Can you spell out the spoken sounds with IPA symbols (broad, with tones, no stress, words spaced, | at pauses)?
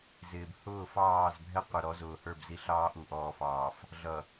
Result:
zɪː˨b hʊː˦˨fɑː˦˨zbʱɛ˦ qʷʌ˨ɾɔ˨˦zʊː˨ hə˞˦˨bzi˨ɬɑː˦ ʔu˨ʔɔː˨fɑː˨f | ɮʌ˨